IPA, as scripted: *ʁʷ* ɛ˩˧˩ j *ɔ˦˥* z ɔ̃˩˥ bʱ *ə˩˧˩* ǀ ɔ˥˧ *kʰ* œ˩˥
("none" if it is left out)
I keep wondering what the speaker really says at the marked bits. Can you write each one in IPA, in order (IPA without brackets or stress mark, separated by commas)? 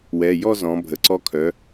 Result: w, ɔ˥˧, ə˩˧˩, kʰ